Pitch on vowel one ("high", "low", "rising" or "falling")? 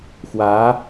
rising